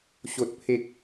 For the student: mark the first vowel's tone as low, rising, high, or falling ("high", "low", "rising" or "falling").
high